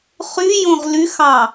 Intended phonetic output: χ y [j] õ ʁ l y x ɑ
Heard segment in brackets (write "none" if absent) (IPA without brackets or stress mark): j